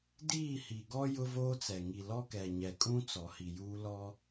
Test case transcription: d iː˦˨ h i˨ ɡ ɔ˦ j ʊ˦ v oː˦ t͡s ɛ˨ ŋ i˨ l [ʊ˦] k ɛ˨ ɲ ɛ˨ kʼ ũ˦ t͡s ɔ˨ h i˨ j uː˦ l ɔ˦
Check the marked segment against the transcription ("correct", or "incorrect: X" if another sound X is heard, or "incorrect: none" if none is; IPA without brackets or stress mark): incorrect: ɔ˦